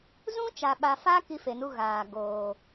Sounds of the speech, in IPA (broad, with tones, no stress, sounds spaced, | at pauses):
z ũ˦ t͡ʃ a˨ ɓ a˨ f a˦ k i˦ f e˨ n u˦ ɣ aː˨ ɡ oː˨